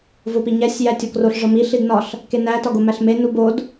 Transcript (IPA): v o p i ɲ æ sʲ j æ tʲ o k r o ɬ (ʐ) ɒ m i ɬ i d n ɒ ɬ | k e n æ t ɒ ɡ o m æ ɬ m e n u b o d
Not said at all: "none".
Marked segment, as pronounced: ʐ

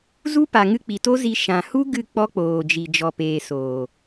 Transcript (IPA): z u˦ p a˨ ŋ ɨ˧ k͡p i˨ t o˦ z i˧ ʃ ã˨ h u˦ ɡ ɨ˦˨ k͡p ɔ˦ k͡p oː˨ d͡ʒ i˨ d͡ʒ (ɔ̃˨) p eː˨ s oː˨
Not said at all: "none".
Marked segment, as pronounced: ɔ˨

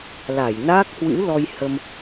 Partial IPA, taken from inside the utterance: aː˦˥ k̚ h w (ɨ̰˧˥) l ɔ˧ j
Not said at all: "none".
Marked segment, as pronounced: ɨ̰˧˥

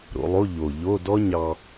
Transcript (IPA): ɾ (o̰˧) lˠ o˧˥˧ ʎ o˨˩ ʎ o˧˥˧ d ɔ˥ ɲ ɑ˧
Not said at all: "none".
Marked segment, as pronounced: o̰˧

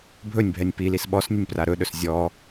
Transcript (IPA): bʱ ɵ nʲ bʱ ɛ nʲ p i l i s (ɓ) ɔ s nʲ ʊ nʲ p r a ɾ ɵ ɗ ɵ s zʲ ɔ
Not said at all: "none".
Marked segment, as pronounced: ɓ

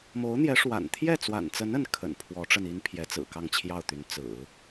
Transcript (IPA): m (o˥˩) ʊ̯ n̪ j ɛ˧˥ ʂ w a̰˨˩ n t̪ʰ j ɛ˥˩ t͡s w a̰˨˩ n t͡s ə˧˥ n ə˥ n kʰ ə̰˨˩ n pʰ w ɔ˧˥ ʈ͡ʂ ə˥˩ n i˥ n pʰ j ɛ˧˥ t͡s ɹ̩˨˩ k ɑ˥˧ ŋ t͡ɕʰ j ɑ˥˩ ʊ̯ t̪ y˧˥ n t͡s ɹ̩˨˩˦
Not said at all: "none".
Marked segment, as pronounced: o˧˥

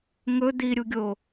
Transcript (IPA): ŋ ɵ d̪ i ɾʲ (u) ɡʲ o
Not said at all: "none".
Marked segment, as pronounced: u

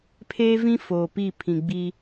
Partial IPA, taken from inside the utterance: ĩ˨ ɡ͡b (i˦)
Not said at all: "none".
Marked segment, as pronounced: i˦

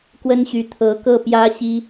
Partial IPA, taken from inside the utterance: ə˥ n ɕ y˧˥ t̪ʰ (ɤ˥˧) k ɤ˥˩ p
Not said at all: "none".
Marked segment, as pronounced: ɤ˧˥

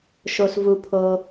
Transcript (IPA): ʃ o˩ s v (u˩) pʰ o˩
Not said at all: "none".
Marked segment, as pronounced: u˩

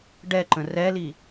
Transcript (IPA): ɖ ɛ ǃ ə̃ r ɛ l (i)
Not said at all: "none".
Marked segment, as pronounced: i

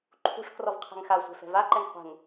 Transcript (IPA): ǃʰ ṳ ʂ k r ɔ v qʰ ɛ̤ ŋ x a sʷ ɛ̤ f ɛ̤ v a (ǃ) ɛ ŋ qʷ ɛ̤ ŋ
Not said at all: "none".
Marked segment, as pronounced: ǃ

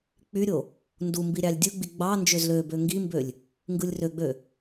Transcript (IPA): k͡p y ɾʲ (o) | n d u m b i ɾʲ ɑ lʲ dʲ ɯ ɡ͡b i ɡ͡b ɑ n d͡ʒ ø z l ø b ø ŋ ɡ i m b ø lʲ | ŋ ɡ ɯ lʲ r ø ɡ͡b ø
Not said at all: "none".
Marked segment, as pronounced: o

